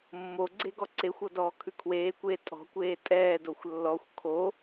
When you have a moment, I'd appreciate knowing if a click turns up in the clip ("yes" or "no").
yes